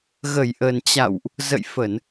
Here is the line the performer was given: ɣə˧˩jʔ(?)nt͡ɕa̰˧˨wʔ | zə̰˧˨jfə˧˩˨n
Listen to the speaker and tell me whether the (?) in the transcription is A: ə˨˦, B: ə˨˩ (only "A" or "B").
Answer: B